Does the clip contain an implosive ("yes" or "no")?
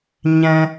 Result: no